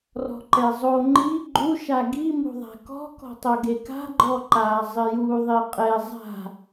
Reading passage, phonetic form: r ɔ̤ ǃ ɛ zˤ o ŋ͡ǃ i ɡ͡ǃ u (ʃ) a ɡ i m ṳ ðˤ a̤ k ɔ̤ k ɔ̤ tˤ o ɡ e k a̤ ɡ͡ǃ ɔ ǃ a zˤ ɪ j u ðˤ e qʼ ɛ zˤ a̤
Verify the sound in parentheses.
correct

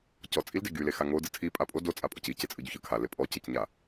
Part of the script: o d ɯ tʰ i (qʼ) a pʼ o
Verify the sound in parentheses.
incorrect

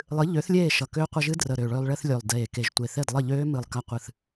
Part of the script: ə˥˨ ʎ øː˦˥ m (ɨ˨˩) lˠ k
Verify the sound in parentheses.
correct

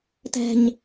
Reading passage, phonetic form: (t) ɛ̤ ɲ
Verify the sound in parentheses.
correct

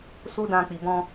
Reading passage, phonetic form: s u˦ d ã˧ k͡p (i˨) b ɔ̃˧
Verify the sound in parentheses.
correct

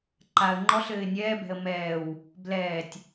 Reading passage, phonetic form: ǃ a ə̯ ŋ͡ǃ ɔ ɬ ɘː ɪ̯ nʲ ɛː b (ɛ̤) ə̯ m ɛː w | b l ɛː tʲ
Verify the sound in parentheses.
correct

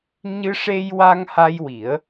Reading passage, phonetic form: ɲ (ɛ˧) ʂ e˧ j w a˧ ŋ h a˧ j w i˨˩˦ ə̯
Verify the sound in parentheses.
incorrect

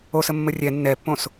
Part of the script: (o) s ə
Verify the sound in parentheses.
correct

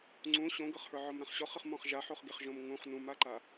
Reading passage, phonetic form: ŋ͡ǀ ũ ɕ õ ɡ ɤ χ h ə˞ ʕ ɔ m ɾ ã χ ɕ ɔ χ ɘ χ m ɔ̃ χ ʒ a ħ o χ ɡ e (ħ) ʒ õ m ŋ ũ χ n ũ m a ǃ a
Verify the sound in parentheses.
incorrect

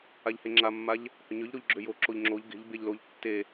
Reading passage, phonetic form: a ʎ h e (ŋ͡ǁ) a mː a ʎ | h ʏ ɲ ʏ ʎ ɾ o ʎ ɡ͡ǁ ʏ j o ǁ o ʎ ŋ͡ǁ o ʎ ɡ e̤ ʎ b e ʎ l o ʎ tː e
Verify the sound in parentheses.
correct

